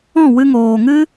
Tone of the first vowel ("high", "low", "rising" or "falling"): falling